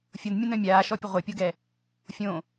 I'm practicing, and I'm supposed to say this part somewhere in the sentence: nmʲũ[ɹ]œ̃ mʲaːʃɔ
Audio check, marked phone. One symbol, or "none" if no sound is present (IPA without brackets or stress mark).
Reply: n